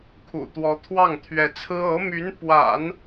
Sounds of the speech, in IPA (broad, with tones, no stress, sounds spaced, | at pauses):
kʰ ṵ˨˩ t̪ w ɔ˧˥ t̪ʰ w ɑ˥˩ ŋ t̪ʰ ɥ ɛ˧˥ t͡sʰ ɹ̩˥ ɤ˧˥ m y˧˥ n p w a̰˨˩˦ n